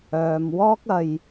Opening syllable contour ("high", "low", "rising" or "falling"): low